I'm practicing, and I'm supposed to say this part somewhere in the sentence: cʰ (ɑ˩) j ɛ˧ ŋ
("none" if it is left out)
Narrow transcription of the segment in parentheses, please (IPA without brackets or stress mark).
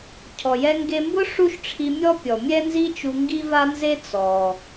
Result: ɔ˩